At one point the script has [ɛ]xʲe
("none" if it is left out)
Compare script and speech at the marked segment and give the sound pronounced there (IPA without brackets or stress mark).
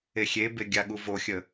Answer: e